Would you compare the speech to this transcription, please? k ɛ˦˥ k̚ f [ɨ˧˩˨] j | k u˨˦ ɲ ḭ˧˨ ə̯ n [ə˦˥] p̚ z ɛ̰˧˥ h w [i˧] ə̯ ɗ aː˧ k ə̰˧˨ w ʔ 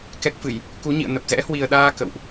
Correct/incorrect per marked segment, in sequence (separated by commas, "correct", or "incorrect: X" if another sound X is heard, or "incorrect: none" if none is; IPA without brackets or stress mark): correct, incorrect: ə˨˩, incorrect: i˨˩